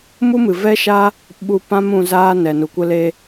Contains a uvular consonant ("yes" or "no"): no